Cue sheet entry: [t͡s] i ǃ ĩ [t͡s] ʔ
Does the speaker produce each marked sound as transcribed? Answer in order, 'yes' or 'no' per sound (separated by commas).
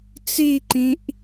yes, no